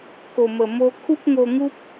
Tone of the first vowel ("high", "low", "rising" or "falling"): low